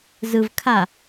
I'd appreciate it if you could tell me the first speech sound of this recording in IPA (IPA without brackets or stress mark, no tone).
z